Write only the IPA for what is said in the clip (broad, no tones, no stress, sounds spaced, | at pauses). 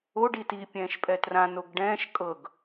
o ɖ i t i pʲ ɛ̃ː ʃ pʼ ɛ t r ã n o ɡ ɖ ɛ̃ː ʃ kʼ ɤ ɡ